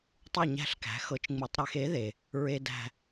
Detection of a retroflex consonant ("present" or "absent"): absent